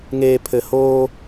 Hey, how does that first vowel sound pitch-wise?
low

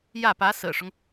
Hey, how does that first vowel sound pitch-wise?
falling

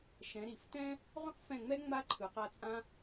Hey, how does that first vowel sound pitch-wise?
rising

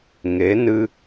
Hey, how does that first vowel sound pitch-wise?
rising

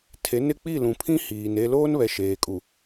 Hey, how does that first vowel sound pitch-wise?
rising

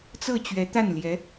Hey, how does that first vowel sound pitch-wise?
falling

